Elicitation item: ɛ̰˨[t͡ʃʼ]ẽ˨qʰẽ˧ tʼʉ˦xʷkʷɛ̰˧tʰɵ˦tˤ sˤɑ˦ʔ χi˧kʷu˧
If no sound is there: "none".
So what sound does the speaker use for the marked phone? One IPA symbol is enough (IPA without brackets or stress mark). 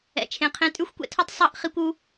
t͡ʃʰ